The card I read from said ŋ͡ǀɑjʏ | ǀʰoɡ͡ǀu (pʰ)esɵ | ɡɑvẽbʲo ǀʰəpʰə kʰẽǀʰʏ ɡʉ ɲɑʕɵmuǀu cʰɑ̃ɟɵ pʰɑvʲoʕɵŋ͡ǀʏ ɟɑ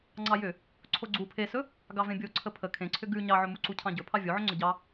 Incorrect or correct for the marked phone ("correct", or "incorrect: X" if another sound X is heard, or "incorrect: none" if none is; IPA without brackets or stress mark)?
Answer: correct